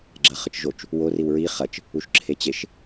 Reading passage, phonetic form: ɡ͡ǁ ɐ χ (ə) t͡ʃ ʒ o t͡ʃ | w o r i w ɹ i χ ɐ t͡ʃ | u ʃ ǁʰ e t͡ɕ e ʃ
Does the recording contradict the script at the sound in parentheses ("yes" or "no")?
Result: no